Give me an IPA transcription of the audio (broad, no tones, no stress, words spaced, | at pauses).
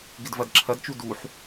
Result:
ɡɪdvɐdǁʰɐdt͡ʃu duħ